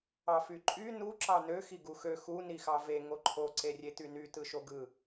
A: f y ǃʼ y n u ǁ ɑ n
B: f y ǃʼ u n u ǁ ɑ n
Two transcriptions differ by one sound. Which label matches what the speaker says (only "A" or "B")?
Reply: A